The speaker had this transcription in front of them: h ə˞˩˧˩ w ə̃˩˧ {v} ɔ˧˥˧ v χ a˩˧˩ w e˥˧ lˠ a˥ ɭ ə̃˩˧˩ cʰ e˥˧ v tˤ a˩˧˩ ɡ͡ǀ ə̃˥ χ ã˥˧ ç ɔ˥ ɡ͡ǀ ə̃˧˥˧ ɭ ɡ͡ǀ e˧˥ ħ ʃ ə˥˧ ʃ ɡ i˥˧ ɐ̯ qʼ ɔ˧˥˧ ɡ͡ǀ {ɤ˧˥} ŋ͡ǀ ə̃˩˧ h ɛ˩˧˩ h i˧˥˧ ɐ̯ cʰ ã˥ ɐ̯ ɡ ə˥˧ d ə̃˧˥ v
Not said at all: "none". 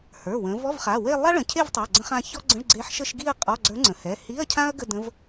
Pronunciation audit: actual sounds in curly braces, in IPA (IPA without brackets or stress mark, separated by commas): v, ə˞˧˥